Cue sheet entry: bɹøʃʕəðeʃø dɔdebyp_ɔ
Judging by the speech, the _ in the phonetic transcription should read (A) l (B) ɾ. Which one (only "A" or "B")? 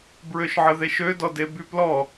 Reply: A